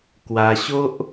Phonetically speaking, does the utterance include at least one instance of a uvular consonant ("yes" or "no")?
no